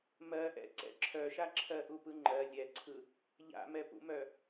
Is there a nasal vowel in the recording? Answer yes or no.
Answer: no